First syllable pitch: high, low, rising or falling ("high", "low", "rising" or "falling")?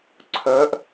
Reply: rising